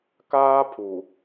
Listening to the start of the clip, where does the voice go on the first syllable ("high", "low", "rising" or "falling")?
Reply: high